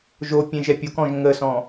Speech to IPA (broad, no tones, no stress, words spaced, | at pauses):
ʒo pʲẽʒɛpʲokɔ̃ʒ ŋəsɔ̃